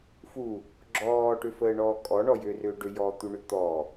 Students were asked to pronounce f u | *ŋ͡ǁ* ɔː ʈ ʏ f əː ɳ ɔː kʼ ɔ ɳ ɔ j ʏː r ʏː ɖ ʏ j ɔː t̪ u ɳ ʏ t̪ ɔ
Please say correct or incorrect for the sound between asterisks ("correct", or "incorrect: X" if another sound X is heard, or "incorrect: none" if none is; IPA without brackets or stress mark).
incorrect: ɡ͡ǁ